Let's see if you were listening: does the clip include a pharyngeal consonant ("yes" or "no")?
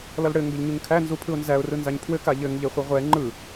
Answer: no